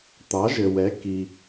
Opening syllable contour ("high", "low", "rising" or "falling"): rising